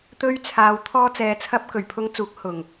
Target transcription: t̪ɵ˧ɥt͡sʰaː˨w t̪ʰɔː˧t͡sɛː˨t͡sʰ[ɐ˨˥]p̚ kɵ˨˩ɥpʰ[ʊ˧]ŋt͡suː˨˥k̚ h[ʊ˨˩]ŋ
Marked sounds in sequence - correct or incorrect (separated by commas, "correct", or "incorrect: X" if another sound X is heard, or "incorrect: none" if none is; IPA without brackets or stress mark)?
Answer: incorrect: ɐ˧, correct, correct